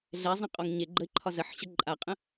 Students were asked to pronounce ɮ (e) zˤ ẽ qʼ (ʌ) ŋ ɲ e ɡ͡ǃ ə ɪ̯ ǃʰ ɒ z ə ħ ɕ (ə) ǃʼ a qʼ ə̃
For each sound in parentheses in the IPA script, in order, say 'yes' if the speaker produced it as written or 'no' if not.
no, no, yes

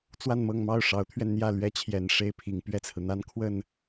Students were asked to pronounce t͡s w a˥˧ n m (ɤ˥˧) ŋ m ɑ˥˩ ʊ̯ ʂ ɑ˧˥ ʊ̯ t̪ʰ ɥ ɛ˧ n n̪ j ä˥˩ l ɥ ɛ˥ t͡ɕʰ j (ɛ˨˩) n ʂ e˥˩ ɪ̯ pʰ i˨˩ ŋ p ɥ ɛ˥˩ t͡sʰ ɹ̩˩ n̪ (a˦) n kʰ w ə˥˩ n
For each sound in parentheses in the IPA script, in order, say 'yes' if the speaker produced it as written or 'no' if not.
yes, yes, no

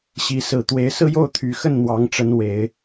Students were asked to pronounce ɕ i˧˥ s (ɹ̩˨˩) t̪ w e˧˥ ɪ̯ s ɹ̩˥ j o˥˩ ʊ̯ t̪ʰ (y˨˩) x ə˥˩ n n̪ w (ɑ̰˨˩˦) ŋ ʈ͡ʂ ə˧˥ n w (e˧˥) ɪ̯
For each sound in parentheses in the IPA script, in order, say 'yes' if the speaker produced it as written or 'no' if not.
yes, yes, no, no

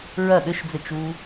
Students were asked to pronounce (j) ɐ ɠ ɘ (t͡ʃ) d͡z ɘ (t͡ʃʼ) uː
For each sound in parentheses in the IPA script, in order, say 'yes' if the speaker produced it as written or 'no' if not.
no, no, no

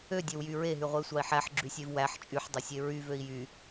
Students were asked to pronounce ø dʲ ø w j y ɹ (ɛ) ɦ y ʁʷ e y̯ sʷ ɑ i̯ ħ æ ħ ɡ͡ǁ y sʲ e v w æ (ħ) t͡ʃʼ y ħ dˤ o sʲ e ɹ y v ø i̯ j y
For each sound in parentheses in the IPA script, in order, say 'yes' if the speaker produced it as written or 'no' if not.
no, yes

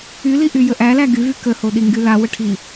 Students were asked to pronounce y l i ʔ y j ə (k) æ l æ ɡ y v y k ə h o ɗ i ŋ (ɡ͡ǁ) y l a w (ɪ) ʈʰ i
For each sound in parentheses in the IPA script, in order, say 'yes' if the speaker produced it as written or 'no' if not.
no, no, no

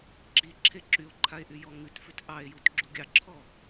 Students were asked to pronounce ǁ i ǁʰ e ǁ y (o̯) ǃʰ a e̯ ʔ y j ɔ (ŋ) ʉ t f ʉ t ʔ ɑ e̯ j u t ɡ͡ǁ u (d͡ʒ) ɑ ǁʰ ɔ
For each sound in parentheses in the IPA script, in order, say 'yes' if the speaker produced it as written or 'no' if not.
yes, yes, no

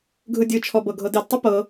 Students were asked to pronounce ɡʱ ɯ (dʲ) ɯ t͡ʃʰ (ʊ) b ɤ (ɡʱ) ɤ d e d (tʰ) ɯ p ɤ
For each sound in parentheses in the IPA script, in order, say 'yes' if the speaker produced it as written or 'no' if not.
yes, no, yes, no

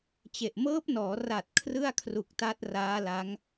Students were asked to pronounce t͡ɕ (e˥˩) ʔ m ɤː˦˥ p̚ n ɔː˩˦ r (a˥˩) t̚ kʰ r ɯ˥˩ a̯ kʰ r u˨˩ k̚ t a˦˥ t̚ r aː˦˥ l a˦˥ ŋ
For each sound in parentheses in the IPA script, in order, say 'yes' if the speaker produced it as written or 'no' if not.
no, no

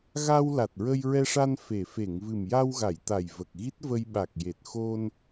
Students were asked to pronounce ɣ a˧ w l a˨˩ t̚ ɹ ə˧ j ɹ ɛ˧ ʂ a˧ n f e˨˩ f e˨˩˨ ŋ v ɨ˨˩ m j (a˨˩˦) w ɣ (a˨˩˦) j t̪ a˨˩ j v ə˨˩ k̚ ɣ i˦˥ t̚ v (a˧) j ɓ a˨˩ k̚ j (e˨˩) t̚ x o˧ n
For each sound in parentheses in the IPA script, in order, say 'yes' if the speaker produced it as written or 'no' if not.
no, no, no, yes

